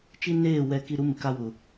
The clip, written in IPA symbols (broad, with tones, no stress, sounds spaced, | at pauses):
t͡ʃ i˦ n eː˦˨ w ɛ˦ k i˦ ɾ u˦ m ɪ˨ k a˦ w ʊ˨